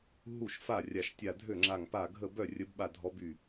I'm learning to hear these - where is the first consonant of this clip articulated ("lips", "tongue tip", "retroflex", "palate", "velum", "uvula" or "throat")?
throat